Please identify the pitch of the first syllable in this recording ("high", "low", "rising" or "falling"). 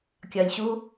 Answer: low